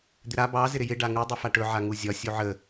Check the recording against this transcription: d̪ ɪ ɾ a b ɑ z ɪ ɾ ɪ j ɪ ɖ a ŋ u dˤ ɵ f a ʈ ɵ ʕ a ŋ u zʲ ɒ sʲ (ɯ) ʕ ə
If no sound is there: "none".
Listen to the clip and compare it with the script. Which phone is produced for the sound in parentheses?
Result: u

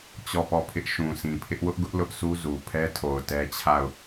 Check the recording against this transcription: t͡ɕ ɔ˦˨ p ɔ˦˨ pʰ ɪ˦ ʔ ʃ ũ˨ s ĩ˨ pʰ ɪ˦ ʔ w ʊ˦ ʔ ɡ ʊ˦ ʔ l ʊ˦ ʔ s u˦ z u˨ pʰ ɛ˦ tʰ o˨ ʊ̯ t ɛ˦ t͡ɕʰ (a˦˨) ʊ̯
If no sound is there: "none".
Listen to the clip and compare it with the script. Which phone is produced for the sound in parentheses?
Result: a˦˨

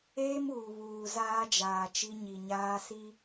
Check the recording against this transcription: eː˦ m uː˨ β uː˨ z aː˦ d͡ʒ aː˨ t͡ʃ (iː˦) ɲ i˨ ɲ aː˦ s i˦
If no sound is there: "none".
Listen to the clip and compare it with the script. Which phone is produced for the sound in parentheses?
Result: i˦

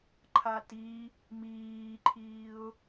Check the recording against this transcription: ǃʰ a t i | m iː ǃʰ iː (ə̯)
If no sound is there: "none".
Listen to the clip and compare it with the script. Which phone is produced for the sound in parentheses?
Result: ʊ̯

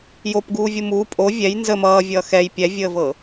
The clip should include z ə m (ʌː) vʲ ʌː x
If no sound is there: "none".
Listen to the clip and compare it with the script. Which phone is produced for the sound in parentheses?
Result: ʌː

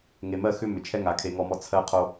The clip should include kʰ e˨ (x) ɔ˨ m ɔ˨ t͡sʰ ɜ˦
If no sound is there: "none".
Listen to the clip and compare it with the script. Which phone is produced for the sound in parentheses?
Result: ŋ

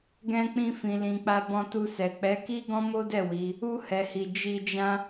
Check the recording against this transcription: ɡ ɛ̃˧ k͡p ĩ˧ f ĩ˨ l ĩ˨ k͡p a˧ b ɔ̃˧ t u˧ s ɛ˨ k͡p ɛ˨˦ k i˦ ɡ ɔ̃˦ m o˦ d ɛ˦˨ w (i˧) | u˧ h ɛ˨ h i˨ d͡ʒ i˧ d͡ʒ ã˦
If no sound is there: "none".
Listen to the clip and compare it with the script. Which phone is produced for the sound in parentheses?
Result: i˨˦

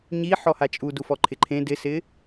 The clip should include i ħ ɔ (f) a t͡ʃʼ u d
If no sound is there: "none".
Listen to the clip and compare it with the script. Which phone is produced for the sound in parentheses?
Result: h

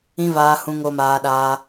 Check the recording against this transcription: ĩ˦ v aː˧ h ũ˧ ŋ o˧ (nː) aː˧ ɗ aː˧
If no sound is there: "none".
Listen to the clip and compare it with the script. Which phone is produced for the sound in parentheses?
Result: m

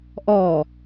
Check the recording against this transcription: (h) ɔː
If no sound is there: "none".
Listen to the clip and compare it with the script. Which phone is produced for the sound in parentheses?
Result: ʔ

